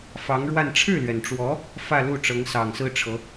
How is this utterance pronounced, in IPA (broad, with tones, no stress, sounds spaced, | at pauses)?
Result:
f ɑ˧˥ ŋ ɻ w a˥˧ n ʈ͡ʂʰ ɻ̩˥˩ l ɥ ɛ˩ n ʈ͡ʂ w ɔ˧˥ | f ä˥˧ l u˥˩ ʈ͡ʂ ɤ˧˥ ŋ s ɑ˨˩ ŋ s ɹ̩˥ ʈ͡ʂʰ ɤ˧˥